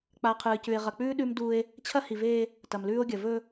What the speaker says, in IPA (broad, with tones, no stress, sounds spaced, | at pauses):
k͡p a˨ qʰ ɨː˨ c ʉ˨ e̯ ʁ ɐ˨ k͡p ʉː˦ ɗ ʉ˦ m d u˦ e̯ | t͡ɕʰ ɐ˦ h i˨ v eː˦ | t ɐ˨ m l ʉː˦ o̯ ɡʲ ɐ˨ v ɵ˦